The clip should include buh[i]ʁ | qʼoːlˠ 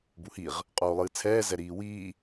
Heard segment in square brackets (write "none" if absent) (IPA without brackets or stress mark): i